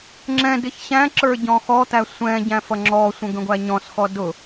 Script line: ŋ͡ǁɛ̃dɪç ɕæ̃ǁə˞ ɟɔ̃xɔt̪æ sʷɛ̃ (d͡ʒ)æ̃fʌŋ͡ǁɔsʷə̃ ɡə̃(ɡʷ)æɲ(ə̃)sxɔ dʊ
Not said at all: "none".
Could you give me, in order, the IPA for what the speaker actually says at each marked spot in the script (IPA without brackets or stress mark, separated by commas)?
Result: ɟ, ɡʷ, ɔ̃